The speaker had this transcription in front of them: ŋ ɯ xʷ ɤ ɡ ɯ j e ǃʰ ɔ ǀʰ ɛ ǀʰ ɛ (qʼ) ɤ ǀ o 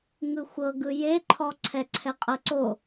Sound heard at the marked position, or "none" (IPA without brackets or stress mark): qʼ